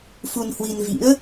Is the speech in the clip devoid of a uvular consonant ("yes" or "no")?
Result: yes